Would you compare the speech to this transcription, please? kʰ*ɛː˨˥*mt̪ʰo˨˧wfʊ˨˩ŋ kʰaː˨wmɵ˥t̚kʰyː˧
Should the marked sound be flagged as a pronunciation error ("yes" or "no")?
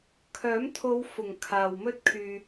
yes